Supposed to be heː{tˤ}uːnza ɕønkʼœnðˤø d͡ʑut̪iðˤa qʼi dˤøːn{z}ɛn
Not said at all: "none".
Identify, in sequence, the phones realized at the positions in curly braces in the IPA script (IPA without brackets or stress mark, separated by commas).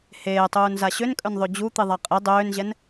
tˤ, ʑ